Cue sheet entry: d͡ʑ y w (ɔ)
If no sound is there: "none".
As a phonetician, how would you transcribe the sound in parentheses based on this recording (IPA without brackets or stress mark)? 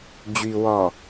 ɔ